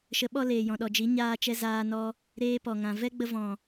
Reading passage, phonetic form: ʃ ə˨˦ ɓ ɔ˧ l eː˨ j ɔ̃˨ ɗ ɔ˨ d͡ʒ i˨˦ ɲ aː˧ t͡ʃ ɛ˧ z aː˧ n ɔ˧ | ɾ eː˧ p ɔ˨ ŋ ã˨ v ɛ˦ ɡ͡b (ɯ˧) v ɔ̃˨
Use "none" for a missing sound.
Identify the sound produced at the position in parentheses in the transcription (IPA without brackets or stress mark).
ə˧